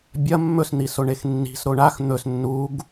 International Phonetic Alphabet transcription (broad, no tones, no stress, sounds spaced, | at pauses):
bʲ ɐ mː ɵ s n̪ i s o ɳ e x nː i̤ s ɾ o ɳ a x n̪ ɵ s nː u ɡ